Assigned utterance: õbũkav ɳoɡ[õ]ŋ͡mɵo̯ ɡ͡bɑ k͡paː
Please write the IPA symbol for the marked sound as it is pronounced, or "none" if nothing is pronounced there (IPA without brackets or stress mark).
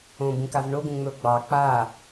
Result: ũ